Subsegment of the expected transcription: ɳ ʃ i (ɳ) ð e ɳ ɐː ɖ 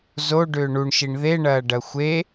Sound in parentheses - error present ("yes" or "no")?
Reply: no